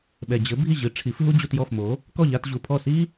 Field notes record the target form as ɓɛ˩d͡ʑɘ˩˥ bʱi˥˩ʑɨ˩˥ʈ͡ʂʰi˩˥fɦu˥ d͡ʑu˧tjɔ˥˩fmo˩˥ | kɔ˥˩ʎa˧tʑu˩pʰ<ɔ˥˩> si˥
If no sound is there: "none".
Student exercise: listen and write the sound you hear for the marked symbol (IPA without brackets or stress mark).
ɔ˥˩